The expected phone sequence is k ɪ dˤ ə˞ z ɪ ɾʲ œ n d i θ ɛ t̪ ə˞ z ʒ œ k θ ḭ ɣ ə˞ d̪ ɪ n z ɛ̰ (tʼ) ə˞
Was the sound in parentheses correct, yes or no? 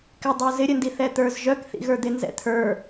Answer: no